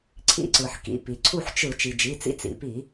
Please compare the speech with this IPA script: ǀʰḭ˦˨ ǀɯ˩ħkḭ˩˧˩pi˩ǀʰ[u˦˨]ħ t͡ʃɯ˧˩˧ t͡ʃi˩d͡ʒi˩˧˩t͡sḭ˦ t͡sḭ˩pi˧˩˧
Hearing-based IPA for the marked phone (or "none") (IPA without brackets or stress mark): u˦˨